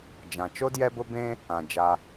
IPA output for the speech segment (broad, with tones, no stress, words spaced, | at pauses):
d͡ʒã˩t͡ʃo˥djɛ˦bʊ˦ bẽ˥ | ã˩d͡ʒa˨